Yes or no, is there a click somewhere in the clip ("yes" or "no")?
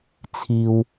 no